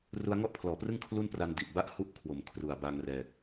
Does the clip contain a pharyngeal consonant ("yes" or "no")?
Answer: no